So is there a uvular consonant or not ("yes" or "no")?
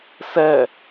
no